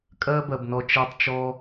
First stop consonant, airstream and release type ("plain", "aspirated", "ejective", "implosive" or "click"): ejective